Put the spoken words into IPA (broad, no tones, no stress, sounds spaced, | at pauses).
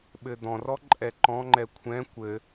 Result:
ɓ ɘ d̪ ɔ̃ r ɔ ǃʼ ɛ ǃ ɔ̃ ŋ͡ǃ ɛ kʷʰ ɛ̃ kʷ ɘ